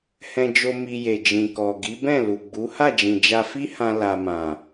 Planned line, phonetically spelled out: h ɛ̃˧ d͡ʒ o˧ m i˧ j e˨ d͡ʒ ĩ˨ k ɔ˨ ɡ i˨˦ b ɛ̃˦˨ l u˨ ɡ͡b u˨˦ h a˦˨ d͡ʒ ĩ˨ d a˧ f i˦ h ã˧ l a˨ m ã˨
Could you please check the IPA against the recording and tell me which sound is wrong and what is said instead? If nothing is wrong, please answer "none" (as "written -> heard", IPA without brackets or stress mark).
d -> d͡ʒ